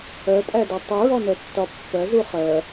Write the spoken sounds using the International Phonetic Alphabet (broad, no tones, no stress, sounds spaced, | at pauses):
ɜ tʼ æ d ʊ tˤ i ɹ ɔ n ɛ tː ɒ pː ɜ z u χ ɜ